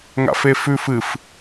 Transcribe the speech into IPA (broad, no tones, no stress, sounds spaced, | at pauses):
ŋ a̰ f e f ʉ f ɨ f